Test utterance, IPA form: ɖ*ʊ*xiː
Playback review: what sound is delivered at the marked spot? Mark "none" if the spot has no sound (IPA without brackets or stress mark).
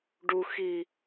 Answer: u